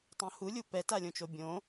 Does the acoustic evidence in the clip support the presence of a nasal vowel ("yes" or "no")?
yes